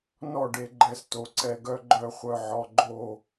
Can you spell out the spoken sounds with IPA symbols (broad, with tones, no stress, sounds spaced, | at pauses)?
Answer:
n ɔ˥˨ ɖ e˧ ɡ͡ǃ ɛ˧ s t o˩˧ ǀ ɛ˧ ɡ œ˧ ɡ͡ǃ œ˥˨ χʷ œ˥˨ ʕ ɔ˧ ɡ͡ǃ o˥˨